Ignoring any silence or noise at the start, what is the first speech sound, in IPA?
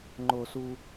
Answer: ŋ͡ǃ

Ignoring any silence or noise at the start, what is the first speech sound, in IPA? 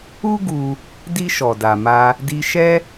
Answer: u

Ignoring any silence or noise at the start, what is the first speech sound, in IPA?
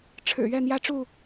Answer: ʈ͡ʂʰ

